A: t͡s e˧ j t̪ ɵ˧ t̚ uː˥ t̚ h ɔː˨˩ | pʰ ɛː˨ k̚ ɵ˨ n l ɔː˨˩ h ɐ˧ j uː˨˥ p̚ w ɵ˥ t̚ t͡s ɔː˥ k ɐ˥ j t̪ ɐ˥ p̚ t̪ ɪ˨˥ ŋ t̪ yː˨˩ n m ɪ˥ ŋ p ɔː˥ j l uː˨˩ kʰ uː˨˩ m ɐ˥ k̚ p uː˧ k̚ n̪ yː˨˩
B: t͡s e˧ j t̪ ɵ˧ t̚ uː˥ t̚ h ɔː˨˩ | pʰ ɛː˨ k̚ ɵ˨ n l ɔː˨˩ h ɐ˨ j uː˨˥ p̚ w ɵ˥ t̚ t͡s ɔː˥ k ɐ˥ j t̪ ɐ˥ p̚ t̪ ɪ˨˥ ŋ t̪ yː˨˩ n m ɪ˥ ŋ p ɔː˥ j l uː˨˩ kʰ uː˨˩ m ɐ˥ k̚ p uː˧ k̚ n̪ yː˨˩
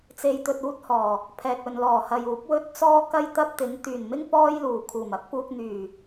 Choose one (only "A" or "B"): B